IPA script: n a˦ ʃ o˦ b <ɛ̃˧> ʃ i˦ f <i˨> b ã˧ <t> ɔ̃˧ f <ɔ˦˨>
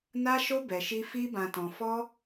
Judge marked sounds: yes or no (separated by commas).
no, no, yes, no